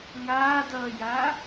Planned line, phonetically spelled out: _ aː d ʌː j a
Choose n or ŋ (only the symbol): ŋ